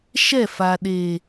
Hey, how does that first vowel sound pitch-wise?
falling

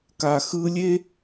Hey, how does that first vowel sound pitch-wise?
low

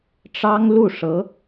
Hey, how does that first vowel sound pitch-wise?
high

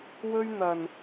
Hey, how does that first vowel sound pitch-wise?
high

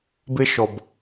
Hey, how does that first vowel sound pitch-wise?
high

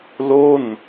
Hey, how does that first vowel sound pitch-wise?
falling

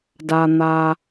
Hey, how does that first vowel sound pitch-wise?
low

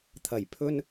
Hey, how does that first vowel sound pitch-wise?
low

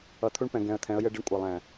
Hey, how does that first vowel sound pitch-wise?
low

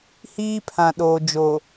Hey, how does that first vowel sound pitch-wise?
high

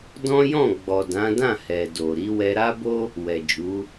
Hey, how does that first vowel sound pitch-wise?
high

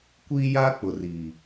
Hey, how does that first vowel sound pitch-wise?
high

